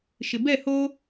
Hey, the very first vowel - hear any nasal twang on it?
no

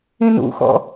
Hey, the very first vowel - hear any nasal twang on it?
yes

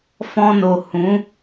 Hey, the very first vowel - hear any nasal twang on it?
yes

